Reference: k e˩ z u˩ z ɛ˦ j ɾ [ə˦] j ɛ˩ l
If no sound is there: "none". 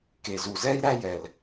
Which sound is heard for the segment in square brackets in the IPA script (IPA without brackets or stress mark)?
æ˦